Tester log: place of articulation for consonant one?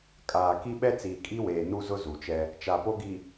velar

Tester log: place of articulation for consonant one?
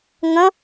velar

